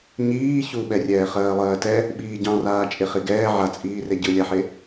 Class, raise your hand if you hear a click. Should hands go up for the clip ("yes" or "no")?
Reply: no